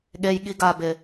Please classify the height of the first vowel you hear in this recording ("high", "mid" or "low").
mid